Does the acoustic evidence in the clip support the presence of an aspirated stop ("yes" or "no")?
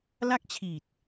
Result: yes